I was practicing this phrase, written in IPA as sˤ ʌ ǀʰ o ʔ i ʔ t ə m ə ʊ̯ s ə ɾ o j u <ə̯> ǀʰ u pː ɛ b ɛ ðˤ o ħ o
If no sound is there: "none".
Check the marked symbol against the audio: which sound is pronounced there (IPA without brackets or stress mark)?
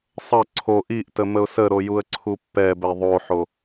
ə̯